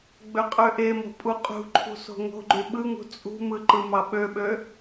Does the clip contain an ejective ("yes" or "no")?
yes